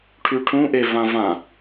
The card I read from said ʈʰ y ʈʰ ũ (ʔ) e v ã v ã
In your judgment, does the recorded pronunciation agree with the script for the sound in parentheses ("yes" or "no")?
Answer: yes